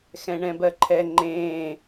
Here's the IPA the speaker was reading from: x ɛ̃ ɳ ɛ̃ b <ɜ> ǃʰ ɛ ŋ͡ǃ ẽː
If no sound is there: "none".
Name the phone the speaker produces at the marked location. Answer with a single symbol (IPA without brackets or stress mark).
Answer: ɜ